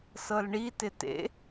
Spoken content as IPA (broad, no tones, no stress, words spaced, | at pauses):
sɤlɳitɪ tḛ